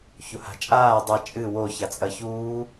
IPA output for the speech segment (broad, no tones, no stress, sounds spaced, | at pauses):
ç u h a̤ t͡ʃʼ aː dˤ ɐ t͡ʃʼ ɨ w o ç a t͡sʼ ɐ ç uː